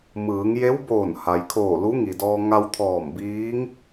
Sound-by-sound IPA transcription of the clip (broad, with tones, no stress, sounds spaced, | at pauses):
m ɯː˩˧ ŋ j e˧˥ w b oː˧˩ n h a˩ j kʰ oː˧˩ l u˧˥ ŋ i˩ d ɔː˧ ŋ a˧ w t̪ʰ ɔː˧˩ m b iː˧˥ ŋ